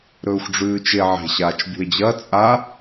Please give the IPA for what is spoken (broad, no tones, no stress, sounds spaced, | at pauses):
ɾ ɵː xʷ ɖ͡ʐ ʉː t͡ʃ e ʕ e̤ ɕ aː t͡ʃ bʲ ṳ e̯ d͡ʑ ɐ t͡sʼ a